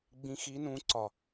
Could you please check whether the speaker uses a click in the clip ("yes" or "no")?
yes